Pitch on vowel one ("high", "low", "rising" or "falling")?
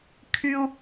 high